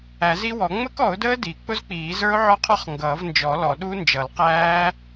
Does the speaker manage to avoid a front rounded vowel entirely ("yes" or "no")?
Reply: yes